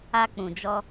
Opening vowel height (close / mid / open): open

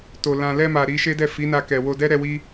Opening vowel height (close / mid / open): mid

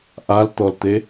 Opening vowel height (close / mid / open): open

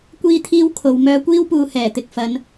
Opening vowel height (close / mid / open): close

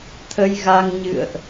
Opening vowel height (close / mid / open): mid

